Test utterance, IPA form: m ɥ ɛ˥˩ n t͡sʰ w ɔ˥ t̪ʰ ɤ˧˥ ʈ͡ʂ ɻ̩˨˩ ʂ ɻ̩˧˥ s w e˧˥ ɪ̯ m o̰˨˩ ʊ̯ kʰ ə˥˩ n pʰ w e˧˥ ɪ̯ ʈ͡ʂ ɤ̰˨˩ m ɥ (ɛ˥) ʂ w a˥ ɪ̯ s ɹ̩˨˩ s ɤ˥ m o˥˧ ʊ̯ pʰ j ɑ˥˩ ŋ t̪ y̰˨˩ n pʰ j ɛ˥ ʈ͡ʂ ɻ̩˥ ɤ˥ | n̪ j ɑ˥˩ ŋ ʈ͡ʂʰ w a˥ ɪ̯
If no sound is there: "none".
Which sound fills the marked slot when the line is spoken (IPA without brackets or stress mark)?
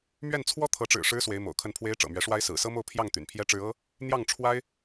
ɛ˧˥